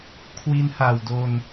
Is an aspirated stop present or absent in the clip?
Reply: present